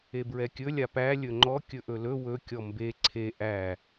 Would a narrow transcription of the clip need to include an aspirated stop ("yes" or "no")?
yes